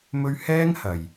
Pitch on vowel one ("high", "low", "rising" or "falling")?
high